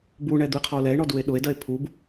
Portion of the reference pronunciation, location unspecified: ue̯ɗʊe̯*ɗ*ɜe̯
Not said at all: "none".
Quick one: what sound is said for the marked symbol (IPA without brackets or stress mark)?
d